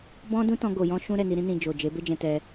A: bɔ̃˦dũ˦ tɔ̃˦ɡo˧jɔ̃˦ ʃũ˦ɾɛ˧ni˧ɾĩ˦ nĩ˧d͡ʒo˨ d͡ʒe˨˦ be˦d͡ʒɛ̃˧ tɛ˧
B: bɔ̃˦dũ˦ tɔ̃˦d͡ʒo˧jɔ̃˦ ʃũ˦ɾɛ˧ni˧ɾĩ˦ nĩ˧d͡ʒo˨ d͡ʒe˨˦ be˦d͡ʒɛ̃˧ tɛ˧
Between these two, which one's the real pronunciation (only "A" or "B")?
A